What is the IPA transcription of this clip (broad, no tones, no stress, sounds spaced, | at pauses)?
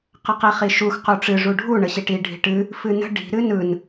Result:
q ə q i χ i ʃ u x q u ʈ͡ʂ ɨ ʐ u ɖʱ u ɳ ə ɕ i ʈ i ɖʱ i̤ ʈ ɨ | f ɨ n ə̤ ɖ i̤ ɾ ɨ n ɯ n